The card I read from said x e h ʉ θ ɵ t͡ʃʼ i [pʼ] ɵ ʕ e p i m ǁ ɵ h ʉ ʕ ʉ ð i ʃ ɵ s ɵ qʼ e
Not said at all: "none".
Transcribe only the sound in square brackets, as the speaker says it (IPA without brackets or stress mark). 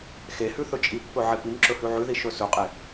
pː